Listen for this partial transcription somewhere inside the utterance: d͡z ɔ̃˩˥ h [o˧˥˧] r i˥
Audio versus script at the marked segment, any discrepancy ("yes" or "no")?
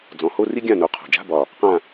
no